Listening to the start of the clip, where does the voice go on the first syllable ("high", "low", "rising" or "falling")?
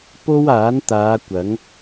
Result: high